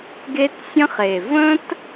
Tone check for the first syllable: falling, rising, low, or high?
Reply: high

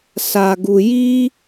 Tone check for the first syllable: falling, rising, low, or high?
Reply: low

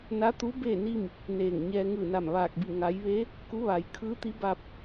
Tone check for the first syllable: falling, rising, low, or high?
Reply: rising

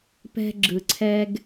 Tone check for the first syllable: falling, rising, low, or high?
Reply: high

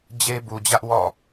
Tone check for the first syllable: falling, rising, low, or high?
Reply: high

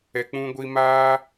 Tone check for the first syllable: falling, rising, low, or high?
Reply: low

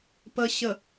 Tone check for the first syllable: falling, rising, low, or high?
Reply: low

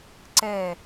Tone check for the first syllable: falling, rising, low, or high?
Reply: falling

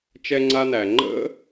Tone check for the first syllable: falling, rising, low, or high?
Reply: high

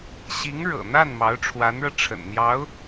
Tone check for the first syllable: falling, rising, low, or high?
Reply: rising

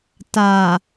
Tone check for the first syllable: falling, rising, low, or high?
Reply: low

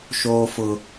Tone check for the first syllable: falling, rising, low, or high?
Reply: high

